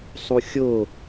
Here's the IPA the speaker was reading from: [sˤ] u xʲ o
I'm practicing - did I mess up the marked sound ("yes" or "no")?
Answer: no